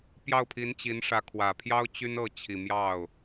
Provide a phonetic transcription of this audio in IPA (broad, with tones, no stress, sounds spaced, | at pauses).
p j ɑ˥˩ ʊ̯ pʰ i˧˥ n t͡ɕ i˧˥ n ʂ ä˧˥ kʰ w ä˨˩ pʰ j ɑ˥ ʊ̯ t͡ɕ y˥ n ɤ˥˩ t͡ɕʰ i˨˩ m j ɑ˥˩ ʊ̯